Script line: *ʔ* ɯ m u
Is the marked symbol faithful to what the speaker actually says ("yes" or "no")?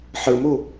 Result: no